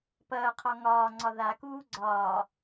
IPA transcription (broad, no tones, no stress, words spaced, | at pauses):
pɐːqʰɒ ŋɒː ŋ͡ǀɒðakuː ɡ͡ǀɒː